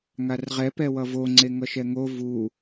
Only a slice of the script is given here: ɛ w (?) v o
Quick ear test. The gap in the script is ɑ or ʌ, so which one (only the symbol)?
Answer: ʌ